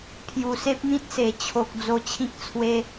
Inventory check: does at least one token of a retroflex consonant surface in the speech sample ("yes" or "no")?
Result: no